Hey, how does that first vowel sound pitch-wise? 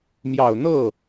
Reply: low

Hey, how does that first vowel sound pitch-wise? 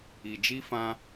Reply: low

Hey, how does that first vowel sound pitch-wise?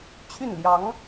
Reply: falling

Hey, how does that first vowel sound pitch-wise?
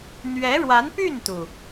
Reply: rising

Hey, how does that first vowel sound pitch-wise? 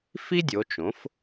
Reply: high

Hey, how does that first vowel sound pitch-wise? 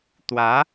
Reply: rising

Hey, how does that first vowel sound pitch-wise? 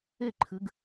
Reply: falling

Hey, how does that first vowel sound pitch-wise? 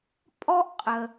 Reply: high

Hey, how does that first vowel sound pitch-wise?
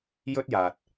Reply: high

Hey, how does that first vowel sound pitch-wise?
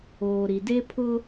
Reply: low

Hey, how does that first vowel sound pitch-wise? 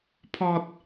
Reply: high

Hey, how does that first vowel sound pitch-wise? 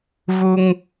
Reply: high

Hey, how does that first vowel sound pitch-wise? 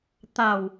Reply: low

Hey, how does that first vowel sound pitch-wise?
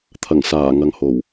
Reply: low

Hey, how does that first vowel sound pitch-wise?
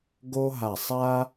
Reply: high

